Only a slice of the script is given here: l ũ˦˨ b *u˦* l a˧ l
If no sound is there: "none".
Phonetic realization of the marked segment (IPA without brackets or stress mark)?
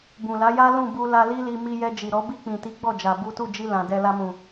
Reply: u˧